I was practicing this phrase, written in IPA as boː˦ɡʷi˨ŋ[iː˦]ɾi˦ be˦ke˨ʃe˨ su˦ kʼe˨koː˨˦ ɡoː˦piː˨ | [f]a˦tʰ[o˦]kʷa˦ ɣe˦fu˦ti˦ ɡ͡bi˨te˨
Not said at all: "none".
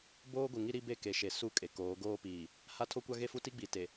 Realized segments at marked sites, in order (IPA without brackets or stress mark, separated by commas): i˦, h, o˦